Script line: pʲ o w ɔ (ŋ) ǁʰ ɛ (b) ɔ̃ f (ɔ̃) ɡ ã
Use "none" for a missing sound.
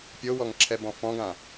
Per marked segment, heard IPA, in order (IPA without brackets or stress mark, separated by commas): ŋ, b, ɔ̃